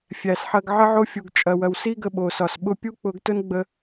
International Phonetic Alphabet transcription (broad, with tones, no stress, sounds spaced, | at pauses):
fʲ æ˨ s ħ ɐ˧ ɡ ʕ ə˧ ʕ o˧ fʲ u˨ ɡ t͡ʃʼ ɐ˨ w ɐ˨ w s i˦ ɡ ə˧ ɓ o˨ s ɒ˨ s ɓ ʊ˧ pʲ u˦ k͡p ʊ˧ ɡ t ʊ˦ n ɡ͡b ə˧